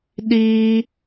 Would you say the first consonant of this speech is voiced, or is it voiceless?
voiced